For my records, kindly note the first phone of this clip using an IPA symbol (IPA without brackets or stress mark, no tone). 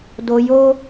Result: d